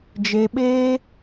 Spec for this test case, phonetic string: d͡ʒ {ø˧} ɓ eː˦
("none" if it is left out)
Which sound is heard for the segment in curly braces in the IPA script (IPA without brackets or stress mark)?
e˧